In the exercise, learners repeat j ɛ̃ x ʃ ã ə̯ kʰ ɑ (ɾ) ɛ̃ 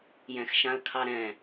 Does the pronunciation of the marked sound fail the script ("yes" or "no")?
no